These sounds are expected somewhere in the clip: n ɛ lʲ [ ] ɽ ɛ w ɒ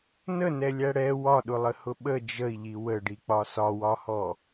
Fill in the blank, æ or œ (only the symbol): æ